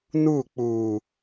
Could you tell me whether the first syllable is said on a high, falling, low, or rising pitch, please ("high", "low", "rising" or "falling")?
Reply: falling